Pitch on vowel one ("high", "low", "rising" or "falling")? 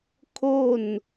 falling